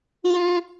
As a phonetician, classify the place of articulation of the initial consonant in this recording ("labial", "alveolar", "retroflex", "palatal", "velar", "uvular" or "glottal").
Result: palatal